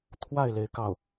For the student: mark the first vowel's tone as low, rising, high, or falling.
falling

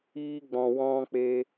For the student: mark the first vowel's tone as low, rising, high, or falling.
high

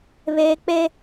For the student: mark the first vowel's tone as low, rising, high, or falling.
high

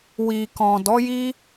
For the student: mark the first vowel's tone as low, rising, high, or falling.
low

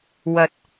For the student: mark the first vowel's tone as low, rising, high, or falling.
rising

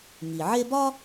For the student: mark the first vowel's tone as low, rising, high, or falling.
low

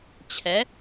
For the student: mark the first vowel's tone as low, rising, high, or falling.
rising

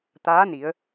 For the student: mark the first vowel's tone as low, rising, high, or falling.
rising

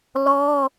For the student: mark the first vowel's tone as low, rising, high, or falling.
high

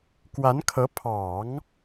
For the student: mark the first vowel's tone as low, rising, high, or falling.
rising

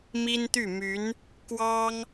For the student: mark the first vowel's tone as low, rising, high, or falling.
high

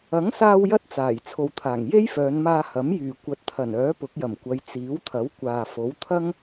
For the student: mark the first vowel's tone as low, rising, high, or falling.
rising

